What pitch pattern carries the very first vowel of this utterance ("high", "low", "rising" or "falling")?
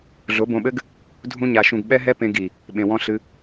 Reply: rising